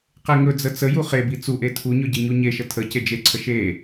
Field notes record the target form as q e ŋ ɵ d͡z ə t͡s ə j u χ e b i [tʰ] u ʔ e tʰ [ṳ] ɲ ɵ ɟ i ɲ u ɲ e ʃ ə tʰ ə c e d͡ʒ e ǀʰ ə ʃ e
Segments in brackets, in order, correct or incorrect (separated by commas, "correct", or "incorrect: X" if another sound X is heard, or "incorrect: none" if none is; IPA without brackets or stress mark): incorrect: t͡s, incorrect: u